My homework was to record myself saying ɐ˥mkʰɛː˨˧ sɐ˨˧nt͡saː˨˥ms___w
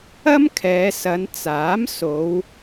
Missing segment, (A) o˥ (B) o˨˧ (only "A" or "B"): B